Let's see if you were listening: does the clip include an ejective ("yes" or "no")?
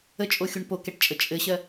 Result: yes